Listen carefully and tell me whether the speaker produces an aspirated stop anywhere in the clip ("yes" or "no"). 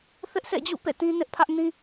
yes